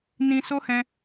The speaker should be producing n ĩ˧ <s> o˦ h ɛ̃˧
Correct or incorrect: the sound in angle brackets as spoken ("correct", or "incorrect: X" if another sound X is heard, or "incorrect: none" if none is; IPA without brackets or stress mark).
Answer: correct